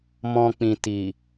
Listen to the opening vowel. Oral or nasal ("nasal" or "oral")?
nasal